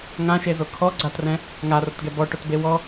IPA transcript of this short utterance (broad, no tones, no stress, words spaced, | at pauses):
ŋãʃezo kʰɔ ɡ͡ǀatrɛ̃ | ŋarʊtɡɛ bɔʈʊtbe wɔ